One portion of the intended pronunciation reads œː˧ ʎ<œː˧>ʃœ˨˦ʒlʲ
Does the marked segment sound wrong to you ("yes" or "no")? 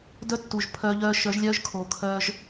no